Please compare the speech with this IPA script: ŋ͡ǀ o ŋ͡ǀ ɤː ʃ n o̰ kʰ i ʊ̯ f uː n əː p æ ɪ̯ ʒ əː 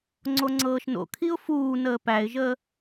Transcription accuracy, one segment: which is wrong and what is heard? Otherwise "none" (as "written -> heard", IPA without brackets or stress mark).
none